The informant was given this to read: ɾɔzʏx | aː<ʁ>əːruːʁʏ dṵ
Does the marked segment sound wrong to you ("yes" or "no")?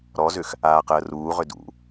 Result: yes